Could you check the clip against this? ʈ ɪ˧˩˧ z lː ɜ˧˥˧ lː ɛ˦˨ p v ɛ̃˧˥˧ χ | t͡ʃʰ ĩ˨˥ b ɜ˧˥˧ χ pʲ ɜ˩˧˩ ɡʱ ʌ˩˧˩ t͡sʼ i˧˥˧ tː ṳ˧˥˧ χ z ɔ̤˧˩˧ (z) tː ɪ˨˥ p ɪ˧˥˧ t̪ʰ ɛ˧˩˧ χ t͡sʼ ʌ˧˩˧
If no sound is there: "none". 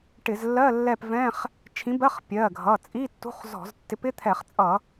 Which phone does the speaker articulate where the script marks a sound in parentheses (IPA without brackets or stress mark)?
z